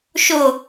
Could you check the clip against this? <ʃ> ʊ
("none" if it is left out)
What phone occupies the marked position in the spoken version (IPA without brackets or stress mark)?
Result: ʃ